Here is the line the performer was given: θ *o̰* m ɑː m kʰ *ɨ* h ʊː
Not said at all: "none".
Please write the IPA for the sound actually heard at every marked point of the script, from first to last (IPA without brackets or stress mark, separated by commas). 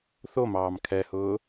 o, ɛ